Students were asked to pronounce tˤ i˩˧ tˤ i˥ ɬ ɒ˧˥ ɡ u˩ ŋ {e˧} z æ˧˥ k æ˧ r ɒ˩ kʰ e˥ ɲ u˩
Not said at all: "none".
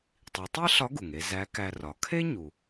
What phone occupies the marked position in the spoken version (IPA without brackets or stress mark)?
e˧